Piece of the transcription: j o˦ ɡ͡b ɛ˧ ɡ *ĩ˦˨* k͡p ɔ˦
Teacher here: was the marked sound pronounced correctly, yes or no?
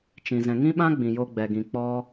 no